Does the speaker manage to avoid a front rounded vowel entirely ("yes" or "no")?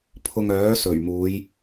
no